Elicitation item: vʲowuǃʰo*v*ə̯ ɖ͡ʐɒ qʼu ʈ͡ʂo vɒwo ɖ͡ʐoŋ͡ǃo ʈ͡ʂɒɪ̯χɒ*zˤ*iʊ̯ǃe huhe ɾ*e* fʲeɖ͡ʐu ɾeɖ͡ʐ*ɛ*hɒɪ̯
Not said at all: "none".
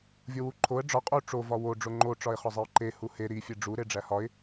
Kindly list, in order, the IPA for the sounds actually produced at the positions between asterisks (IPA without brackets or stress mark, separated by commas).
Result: none, zˤ, i, æ